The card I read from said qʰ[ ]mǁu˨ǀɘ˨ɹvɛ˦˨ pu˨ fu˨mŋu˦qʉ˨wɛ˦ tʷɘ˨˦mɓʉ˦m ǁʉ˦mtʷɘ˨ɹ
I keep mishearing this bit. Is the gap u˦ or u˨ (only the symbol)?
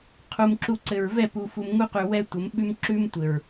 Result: u˨